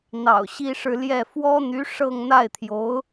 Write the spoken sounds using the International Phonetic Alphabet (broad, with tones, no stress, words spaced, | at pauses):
n̪ɑ̰˨˩ʊ̯ɕi˥ʂɻ̩˥˧ ljɛ˥˩ fwɔ˥n̪y˧˥ ʂɤ˥˧ŋ n̪a˥˩ɪ̯t̪ʰjo˧˥ʊ̯